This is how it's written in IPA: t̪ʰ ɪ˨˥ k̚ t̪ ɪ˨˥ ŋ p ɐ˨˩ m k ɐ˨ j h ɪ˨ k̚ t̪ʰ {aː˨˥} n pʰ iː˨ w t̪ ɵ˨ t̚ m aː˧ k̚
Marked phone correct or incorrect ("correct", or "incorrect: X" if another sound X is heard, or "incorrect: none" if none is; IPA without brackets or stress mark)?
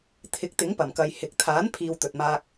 correct